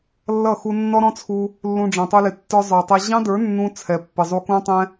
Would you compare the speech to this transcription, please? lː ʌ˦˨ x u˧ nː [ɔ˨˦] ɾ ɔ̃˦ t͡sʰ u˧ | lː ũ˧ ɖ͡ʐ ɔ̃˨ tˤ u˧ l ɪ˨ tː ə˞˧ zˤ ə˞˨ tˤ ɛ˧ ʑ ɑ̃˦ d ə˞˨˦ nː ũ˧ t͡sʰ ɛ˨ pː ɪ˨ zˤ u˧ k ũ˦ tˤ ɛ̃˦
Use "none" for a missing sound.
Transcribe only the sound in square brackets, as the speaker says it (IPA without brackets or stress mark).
ɔ˦